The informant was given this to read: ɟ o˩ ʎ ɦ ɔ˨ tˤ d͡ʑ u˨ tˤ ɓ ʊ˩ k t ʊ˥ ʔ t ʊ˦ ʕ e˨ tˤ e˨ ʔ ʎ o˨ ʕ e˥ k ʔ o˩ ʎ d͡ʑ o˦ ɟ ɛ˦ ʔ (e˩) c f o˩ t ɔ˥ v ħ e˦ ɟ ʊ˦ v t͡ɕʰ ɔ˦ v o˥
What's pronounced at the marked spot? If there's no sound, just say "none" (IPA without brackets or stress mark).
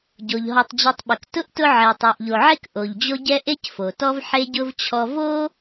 e˥